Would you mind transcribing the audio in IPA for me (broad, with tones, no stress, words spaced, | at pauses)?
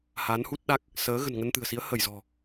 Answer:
ha˨˦nhu˦˥t̚ɗa˦˥k̚ | səː˨˦ ɣə̤˨˩nŋə˧nt̪ɨ̤˨˩ə̯si˨˦ə̯ hə˧˩jzɔ̤˨˩